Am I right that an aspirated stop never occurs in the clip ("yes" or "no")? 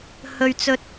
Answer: yes